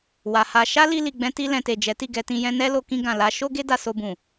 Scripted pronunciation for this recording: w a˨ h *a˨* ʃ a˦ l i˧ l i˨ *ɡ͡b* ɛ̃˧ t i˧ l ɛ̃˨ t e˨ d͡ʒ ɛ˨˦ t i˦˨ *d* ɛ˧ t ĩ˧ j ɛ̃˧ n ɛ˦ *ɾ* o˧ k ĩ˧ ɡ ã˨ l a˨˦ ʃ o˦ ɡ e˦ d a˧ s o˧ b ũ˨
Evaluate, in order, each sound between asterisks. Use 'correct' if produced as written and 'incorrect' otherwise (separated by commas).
incorrect, correct, incorrect, incorrect